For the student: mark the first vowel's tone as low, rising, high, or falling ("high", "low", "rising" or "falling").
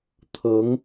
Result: rising